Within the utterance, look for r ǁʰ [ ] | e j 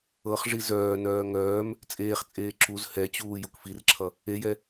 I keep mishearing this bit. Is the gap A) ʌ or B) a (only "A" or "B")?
A